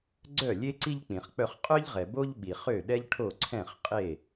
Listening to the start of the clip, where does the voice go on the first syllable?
falling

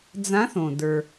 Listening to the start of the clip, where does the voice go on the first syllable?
rising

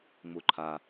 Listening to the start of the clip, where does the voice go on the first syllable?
low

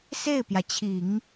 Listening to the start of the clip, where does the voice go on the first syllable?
falling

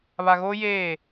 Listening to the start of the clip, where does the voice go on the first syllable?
low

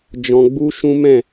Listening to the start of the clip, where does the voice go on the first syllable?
low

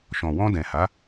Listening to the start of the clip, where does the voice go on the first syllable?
low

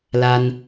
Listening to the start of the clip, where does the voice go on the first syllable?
high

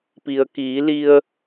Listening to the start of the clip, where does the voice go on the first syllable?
low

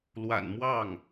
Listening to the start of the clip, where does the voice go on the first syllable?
low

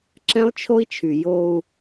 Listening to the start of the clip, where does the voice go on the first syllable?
high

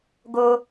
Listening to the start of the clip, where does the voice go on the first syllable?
high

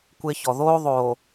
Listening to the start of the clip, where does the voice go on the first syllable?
high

